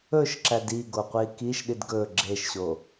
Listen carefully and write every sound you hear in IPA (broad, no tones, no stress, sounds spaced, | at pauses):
ɵ ʃ ǁ æ d i ɡ o qʷ i k i ʃ ɗ i d ɡ ɵ ɡ͡ǁ e ʃ ɕ o